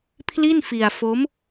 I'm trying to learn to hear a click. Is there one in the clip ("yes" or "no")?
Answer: no